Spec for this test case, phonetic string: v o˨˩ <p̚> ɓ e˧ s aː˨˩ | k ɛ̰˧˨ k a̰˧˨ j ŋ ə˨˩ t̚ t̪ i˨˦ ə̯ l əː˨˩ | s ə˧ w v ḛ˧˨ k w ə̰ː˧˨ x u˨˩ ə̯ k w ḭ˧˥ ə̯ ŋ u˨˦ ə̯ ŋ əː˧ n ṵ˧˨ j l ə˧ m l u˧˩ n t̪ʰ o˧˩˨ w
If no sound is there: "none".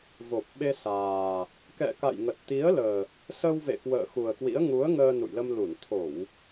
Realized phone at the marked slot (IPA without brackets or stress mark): p̚